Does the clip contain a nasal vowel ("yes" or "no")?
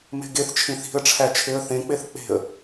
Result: yes